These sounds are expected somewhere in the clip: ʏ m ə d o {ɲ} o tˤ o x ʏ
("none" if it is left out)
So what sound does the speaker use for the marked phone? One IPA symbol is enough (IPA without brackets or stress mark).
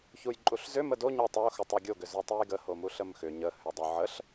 ɲ